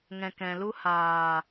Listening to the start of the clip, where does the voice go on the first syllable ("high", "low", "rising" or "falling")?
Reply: low